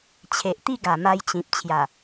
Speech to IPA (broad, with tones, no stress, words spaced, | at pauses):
t͡ɕʰe˨ʔt̪i˥˧ɡa˨˩ma˧j t͡ɕĩ˨p̚ t͡ɕʰja˨˩